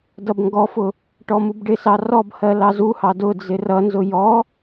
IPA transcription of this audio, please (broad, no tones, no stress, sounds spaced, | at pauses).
d ʌ b ŋ ɡ ɔ f ʊ | ʈ ɔ m u b ɖ ɪ s ɑ r ɔ b h ɜ l ɑ z u h ɑ d ʊ d͡z ɪ r ʌ n z ʊ j ɔ